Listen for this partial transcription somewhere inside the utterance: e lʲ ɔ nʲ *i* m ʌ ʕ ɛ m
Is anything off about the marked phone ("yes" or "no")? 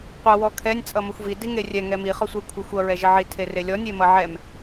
yes